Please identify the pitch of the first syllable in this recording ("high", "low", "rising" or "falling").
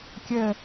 falling